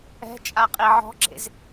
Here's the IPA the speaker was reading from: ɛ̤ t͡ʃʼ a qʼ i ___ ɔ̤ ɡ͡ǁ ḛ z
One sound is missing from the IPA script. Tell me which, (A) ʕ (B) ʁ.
A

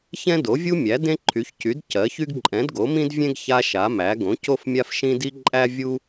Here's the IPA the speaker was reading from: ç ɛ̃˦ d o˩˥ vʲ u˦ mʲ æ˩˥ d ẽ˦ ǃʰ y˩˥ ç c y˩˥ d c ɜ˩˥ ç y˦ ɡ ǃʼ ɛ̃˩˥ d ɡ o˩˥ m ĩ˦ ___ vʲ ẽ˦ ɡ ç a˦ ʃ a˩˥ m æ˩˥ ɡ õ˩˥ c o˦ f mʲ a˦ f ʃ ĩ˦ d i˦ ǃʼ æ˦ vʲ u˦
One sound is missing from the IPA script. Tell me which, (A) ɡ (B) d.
B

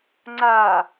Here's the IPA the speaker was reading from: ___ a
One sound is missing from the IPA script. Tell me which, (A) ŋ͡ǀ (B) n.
A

